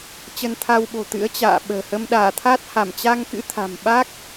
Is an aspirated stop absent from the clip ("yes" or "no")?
no